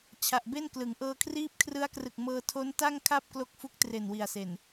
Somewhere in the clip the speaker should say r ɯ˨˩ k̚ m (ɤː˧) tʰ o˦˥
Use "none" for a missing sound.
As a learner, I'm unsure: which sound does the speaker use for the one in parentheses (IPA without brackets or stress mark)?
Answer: ɤː˧